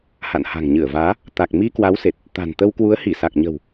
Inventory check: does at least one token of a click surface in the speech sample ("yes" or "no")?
no